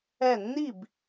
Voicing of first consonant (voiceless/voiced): voiced